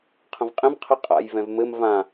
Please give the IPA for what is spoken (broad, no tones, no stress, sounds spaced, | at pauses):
qʰ ə̃ v qʼ ẽ m qʰ ə qʼ a̰ j v ɛ̃ v m ɘ m v ã